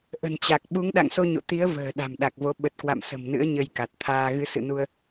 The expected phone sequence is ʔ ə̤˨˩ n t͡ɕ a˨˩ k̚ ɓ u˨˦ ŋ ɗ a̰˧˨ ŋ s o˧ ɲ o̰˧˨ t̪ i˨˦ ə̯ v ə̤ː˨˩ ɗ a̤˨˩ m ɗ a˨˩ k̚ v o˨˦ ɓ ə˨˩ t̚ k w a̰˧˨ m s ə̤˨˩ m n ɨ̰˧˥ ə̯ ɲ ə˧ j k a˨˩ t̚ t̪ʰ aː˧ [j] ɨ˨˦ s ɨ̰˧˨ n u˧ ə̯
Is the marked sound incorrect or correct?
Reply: incorrect